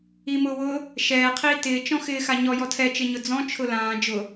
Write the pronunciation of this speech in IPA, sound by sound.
i m ʊː w ʊː | ʃ ɛː qʰ iː t ɪː t͡ʃ ɔ̃ x ɪː x a ɲ ɔ j ɔ tʰ ɛ t͡ʃ ɪ ɲ ʊ d͡z ɔ̃ t͡ʃʰ ʊ l ãː d͡ʒ ʊ

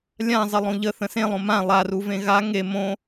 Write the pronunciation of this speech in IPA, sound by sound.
lʲ ã zˤ ə lˠ õ ʎ ə θ ə̃ s ẽ lˠ õ m ã lˠ a r u v ẽ ɣ a ŋ e m õ

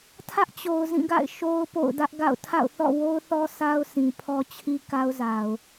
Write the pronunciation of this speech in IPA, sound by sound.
tʰ ä˦ ʔ t͡ɕ o˨ ʊ̯ z ĩ˦˨ ɡ a̰˦˨ ɪ̯ ʃ o˦ ʊ̯ p o̰˦˨ ʊ̯ d ä˦ ʔ ɡ a̰˦˨ ʊ̯ tʰ a̰˦˨ ʊ̯ θ ɔ̰˦˨ w o˦ ʊ̯ θ ɔ˦ sʰ a˦ ʊ̯ sʰ ĩ˨ pʰ ɔ˦ t͡ɕʰ i˦ k a˦ ʊ̯ z a˨ ʊ̯

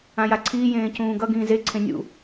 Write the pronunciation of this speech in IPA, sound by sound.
ã j a ǀʰ iː j ẽː c ũː ɡ ʌ ɡ ĩː z e ǀʰ ẽ nʲ ṵ

